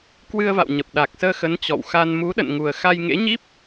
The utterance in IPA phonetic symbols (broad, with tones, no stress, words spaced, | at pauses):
kwɨ˧ə̯va̰˧˨w ɲə˨˩p̚ɗa˨˩k̚səː˧xə˨˦n t͡ɕɔ̰˧˨wxa˧n mu˨˦ɗə̰˧˨n ŋu˨˩ə̯xa˧j ŋḛ˧˥ɲi˦˥p̚